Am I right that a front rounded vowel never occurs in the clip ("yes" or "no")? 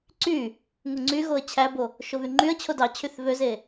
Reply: no